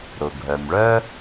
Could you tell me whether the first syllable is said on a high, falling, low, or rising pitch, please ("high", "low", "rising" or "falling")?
low